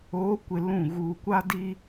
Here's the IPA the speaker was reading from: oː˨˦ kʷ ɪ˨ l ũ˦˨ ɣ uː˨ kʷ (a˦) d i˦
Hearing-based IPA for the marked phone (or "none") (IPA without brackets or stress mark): a˦